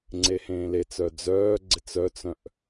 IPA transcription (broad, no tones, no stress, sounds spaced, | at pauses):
ŋ͡ǀ e h ẽː l e t͡s œ d͡z œː ɡ͡ǀ ɪ t͡s œ t͡s œ̃ ʔ